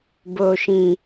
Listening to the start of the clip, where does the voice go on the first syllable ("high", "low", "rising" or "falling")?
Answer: low